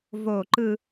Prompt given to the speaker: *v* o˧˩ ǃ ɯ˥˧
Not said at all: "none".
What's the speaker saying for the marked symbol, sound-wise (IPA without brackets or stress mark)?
v